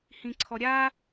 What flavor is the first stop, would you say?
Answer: click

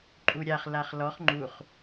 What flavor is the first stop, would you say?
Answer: click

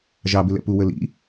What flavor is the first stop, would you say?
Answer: plain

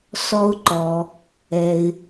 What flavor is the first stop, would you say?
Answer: click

